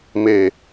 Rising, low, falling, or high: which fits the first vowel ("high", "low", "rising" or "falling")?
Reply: low